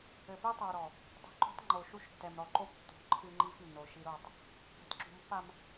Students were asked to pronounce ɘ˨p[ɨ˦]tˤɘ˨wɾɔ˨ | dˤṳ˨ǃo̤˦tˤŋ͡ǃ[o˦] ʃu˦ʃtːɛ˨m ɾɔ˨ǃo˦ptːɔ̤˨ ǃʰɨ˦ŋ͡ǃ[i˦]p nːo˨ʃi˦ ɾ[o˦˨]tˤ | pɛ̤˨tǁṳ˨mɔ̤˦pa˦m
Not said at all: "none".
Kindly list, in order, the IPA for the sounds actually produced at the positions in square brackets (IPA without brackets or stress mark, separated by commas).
i˦, o˨, i˦, o˦˨